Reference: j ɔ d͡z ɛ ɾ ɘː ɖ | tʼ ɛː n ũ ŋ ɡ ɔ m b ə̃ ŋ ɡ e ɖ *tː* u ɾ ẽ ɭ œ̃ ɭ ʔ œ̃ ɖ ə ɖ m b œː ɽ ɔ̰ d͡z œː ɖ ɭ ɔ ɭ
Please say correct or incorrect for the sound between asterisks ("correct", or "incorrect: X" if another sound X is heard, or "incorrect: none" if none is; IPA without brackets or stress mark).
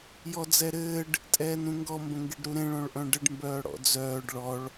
incorrect: ɾ